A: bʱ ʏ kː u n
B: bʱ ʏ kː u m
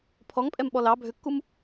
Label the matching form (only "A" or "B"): B